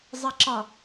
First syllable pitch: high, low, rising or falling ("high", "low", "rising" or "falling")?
low